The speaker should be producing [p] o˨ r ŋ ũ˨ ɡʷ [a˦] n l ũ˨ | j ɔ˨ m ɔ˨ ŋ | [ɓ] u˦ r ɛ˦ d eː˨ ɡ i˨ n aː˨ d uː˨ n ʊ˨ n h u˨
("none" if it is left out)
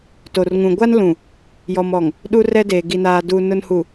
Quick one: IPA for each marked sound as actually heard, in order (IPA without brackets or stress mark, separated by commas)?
t, a˦, ɗ